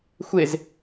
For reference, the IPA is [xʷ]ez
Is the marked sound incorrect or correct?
correct